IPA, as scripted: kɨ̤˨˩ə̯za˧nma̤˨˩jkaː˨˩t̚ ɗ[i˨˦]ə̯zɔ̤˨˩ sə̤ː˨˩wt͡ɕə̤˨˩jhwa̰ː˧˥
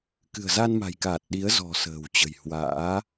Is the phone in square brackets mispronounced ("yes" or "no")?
no